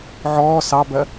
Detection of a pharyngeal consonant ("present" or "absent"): present